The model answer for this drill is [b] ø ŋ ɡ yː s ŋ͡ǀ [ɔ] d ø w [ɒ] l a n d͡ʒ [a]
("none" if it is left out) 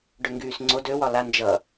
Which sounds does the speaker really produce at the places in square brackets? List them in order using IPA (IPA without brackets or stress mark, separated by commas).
ɖ, o, ɒ, ʌ